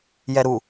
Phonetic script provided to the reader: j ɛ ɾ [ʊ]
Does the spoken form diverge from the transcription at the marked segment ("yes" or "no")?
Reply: yes